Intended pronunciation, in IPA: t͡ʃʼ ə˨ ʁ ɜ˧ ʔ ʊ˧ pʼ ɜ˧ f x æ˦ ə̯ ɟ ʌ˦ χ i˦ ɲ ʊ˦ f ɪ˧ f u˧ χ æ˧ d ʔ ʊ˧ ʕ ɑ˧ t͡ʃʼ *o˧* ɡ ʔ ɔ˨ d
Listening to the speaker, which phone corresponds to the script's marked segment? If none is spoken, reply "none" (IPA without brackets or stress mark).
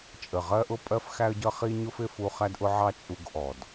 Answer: u˧